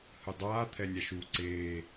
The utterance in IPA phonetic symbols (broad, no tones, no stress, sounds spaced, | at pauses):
h ɯ dˤ aː t̪ʰ ɛ nʲ a ʃ u ǀ eː